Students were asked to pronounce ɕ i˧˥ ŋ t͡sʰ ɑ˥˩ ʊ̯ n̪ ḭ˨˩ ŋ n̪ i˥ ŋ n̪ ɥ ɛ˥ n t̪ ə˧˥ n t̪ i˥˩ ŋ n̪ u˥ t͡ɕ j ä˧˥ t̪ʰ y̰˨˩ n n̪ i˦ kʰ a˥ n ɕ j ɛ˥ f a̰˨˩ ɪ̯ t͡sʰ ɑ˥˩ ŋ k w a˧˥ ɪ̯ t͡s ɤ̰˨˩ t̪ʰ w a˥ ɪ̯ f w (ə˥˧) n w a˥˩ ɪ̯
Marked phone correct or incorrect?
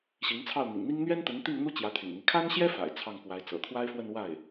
correct